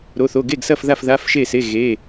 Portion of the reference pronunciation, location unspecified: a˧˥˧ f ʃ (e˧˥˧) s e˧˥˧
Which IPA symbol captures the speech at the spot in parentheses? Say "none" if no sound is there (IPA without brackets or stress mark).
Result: e˥˨